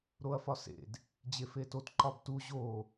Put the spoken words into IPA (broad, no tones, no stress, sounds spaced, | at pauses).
ɾ o ɐ̯ f ɒ s ḛ d | d͡ʑ e f e t o t ǃ ɒ b t u ʑ o